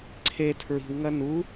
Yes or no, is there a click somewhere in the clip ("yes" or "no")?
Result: yes